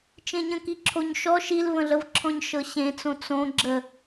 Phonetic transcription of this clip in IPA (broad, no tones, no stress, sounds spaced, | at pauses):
t͡ʃ ẽ ɲ ə̃ k i ǁʰ o ɲ ʃ ɔ ʃ i l v ə̃ ɮ ə v ǁʰ ɔ̃ ɲ ʃ ɤ ɕ ẽ t͡s õ t͡s õ ɡ͡ǁ ə